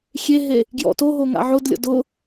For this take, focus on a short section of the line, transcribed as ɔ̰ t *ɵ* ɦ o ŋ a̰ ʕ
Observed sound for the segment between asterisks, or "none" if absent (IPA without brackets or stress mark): o